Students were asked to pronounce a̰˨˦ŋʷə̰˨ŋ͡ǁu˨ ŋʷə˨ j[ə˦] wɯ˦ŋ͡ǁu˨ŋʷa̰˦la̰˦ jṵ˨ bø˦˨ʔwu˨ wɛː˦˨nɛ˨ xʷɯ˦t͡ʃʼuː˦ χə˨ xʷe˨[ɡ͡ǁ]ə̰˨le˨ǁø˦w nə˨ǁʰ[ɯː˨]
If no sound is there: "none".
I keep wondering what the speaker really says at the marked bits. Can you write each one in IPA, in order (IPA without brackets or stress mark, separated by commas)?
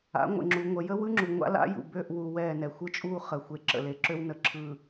ə˦, ǁ, ɯː˨